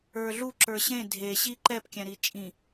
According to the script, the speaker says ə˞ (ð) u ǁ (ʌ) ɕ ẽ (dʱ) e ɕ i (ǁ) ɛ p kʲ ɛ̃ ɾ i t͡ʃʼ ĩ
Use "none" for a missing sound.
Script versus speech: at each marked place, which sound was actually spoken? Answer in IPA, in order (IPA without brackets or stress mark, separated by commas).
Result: ɮ, ə˞, dʱ, ǃ